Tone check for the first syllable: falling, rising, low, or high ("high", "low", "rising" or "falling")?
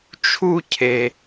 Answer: high